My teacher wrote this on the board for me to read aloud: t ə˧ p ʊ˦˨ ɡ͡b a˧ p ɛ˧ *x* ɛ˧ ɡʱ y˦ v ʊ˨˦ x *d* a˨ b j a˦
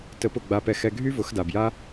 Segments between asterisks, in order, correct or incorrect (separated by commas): correct, correct